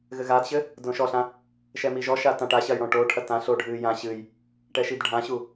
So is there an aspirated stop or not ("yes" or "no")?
yes